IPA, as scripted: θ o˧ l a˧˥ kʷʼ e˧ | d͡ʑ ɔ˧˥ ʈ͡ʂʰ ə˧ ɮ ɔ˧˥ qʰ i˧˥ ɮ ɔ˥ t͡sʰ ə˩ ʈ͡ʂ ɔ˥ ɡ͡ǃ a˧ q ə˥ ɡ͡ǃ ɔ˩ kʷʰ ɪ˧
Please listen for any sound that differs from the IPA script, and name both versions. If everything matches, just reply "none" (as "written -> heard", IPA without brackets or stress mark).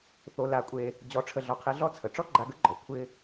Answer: q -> ɡ